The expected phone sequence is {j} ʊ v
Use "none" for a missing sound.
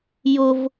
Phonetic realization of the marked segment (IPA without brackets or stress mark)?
j